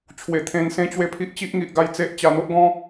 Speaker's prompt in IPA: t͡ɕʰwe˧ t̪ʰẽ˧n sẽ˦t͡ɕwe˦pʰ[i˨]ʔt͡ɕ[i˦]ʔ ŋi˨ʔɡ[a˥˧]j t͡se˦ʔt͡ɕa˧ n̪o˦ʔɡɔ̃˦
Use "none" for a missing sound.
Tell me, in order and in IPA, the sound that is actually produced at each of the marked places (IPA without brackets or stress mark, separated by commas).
i˦, i˦, a˥˧